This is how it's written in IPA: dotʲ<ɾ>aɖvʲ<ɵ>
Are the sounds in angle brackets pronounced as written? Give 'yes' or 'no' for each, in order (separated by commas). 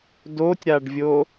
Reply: yes, no